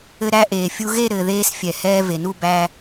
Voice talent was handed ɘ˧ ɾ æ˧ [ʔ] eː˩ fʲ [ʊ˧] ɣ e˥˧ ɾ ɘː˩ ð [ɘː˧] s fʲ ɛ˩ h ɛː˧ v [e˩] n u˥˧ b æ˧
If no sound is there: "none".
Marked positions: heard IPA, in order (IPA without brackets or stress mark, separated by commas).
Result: ʔ, u˧, eː˧, e˩